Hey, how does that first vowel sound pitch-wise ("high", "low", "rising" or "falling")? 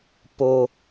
high